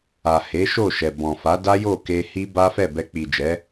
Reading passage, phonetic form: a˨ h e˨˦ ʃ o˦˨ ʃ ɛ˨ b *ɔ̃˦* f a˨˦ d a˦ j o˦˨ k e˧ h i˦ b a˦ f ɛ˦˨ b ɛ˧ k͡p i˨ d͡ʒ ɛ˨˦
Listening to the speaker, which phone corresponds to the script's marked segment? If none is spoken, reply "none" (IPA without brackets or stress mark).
ɔ̃˨